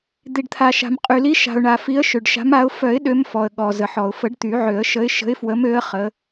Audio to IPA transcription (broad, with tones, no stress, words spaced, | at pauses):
d̪i˩ɖt̪ʰa˩ʃa̤˩m qʼy˩li˨˦ʃa̤˩ʊ̯ɳa˩ fi˨˦ə̯ʃø˩ɖʃa̤˨˦ma˨˦ʊ̯ fœ˨˩˦ɪ̯ ɗø˨˦mfɔ˩ə̯ ɠɔ˩ zə˩ħɔ˩ʊ̯fə˨˩˦ɖ t̪y˨˩˦ʕø˨˩˦ə̯ ʃə˨˦ɪ̯ ʃə̤˨˦ɪ̯fwə˨˦mø˨˦ə̯ χə˨˦